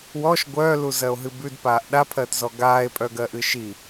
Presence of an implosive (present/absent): present